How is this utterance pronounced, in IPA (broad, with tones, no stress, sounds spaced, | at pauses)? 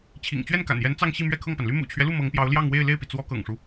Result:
t͡ɕʰ ḭ˨˩ ŋ t͡ɕ ɥ ɛ˥˩ n k a̰˨˩ n j ɛ˧˥ n t͡s ɑ˥˧ ŋ ɕ i˥˧ m ɥ ɛ˥˧ kʰ ɤ˥˩ ŋ p a˩ n l y˥ m ṵ˨˩ t͡ɕʰ ɥ ɛ˦ l u˥˩ m ɤ˧˥ ŋ p j ɑ˧˥ ʊ̯ l j ɑ˥˧ ŋ w e˥˧ ɪ̯ l e˥˩ ɪ̯ p i˩ t͡s w ɔ˧˥ k ɤ̰˨˩ ŋ ʂ u˦